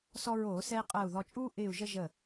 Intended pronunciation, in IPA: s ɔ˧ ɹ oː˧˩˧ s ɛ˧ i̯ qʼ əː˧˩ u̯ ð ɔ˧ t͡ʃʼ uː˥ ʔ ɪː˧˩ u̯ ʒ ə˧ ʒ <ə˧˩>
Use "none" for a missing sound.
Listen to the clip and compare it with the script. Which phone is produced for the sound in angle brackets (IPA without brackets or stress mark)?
ə˧˩